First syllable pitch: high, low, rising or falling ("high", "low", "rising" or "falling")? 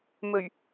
low